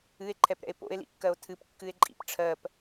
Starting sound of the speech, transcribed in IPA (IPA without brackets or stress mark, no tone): ɨ